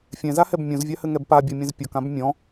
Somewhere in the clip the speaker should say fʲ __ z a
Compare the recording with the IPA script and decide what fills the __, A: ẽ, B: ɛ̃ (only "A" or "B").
B